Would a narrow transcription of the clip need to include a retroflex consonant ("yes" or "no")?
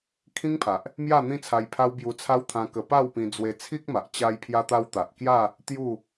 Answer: no